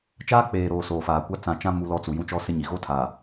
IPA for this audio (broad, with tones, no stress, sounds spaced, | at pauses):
t͡ʃ aː˦ k͡p eː˨ ɾ oː˨ s oː˨ f aː˨ kʷ a˦ t͡s ã˨ t͡ʃ ã˦ m u˦ l ɔ˦ t͡s u˨ j ũ˦ t͡ʃ ɔ˦ s ɪ˦ ɲ i˨ ɣ o˦ tʰ a˨